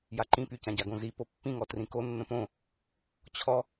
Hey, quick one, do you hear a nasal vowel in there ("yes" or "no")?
yes